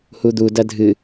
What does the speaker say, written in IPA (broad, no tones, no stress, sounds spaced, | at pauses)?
h u d̪ u d ɐ dʱ ɨ